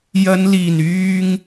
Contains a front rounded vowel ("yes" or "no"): yes